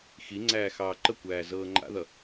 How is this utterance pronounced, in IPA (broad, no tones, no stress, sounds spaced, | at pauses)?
x i ŋ͡ǀ æː x ɑː ǃ ə kʷ æː z ɤː ŋ͡ǃ a̰ ð ʌ